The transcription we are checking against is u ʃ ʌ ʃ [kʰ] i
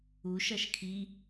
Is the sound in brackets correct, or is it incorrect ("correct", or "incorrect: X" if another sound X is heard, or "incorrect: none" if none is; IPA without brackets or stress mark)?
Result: correct